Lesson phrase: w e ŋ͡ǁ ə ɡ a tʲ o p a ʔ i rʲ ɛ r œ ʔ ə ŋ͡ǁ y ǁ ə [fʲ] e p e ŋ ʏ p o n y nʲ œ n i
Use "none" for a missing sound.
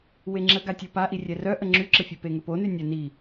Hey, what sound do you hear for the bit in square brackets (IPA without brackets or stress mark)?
fʲ